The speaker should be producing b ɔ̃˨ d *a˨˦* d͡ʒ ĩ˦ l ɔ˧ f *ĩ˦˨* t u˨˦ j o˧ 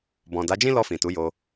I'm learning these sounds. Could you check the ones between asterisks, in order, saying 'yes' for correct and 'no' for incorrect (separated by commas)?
yes, no